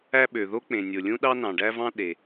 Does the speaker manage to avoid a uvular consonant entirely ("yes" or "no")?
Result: yes